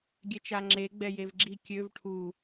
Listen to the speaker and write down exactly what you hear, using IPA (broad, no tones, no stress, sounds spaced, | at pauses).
ɡʲ ɛ t͡ʃ a ŋ͡ǁ e ɡ͡b ɛ j e v ɡ͡ǁ i kʲ ø v ʈʰ u